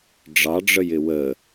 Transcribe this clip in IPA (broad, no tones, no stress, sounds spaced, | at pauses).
ɖ͡ʐ ɑ ɖ͡ʐ ə j ɪ w ə